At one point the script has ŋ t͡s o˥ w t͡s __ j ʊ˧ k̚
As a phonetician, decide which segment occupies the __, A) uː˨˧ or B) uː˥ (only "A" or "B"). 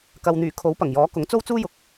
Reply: B